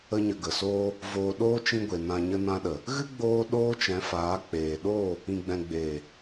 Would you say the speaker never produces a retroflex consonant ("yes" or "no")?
yes